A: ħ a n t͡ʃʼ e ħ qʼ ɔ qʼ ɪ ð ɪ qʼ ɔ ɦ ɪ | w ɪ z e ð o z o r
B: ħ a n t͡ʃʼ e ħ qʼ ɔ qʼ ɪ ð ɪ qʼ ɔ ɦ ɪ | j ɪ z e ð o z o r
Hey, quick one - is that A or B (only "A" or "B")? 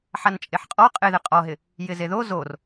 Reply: B